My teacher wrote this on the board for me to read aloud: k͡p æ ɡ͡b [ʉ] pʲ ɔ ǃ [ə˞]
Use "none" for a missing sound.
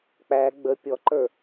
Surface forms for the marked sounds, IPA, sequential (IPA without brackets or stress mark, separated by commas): ə, ə˞